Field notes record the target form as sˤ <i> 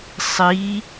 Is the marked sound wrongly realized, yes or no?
no